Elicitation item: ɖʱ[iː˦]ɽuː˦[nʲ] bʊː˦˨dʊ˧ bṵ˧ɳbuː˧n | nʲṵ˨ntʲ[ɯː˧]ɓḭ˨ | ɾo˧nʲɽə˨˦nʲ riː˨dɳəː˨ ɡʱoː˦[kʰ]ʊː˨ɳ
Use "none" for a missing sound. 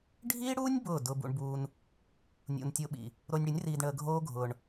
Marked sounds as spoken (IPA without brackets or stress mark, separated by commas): iː˦, nʲ, ʊː˧, ɡʱ